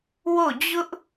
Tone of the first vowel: falling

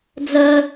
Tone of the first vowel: high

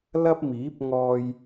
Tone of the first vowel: high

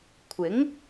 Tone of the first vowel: rising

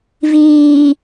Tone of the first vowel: low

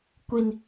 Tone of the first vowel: high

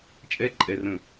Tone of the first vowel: high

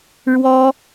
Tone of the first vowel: high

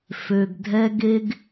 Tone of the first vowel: low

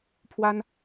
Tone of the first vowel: high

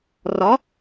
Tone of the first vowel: rising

